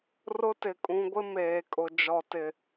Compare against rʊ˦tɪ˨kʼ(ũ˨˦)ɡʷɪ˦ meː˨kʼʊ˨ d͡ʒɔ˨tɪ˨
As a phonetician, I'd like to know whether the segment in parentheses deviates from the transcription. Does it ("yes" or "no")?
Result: no